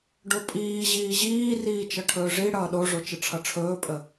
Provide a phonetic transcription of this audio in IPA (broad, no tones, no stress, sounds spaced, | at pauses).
ɖ o pʼ iː ʑ iː ʑ iː r iː t͡ʃ ʌ ʈʰ ɵː ʐ i ɽ ʌː ɗ o ʐ o t͡ʃ ə ʈ͡ʂʰ ʌ ʈ͡ʂʰ ɵː pʼ ə